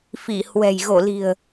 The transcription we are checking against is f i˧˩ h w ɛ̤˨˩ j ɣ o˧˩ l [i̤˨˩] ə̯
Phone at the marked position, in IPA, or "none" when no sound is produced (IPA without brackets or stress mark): i̤˨˩